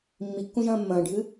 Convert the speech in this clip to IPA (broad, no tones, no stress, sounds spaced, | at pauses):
mː i kː ũ ʒ ɐ̃ː mː ɐ̃ː ɖʱ ɨ